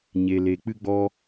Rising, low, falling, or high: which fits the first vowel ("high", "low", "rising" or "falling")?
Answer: low